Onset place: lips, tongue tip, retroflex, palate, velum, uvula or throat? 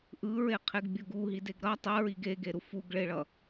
throat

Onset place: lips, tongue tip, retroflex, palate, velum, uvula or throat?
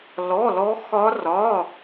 tongue tip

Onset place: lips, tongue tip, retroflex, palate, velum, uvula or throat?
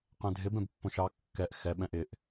uvula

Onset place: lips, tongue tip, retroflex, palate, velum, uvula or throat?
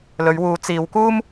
tongue tip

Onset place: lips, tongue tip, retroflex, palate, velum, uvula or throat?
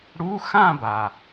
retroflex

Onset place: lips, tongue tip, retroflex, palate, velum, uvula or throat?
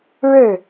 retroflex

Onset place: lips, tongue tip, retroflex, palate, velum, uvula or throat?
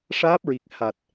retroflex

